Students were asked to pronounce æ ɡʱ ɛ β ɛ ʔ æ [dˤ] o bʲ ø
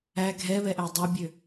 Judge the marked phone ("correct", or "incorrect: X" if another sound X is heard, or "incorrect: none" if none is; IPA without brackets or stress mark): correct